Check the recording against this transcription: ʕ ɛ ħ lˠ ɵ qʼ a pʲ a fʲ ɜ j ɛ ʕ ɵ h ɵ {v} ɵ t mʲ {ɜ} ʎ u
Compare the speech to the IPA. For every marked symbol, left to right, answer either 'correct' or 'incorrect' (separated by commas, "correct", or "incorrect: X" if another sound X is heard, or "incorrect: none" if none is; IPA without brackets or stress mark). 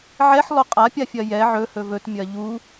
correct, correct